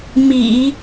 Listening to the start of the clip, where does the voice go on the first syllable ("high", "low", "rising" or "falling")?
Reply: low